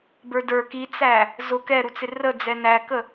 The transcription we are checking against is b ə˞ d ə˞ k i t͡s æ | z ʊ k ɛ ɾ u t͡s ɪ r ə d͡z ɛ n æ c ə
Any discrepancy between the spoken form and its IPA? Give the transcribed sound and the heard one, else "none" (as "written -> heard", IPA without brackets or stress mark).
c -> k